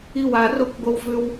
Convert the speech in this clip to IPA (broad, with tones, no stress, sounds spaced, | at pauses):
i˧ w a˨ r o˦˨ k ɡʷ ə˧ w v ʏ˧ w